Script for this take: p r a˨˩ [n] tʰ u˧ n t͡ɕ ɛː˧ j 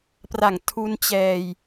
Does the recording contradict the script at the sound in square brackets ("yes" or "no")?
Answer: yes